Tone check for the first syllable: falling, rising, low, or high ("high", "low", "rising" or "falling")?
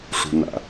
low